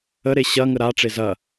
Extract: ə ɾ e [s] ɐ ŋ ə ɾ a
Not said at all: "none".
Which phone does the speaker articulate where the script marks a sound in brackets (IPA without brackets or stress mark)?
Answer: ɕ